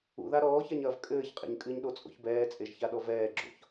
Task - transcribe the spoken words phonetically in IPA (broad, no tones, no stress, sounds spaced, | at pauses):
ṵ ð a ɾ ɔː ç a ɲ ɐː v kʼ ɘː ç qʼ ɛ̰ ɲ kʼ ɨ ɲ ɗ o t͡sʼ o̰ ç b ɛː t͡sʼ e ʒ ç a ɗ ɔ v ɛː ɡ͡ǁ o̰ ç